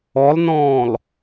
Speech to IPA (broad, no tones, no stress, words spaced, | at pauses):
ɔlˠnɔ̃ːlˠ